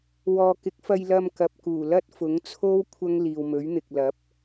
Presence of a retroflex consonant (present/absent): absent